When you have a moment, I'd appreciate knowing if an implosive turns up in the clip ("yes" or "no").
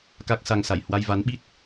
yes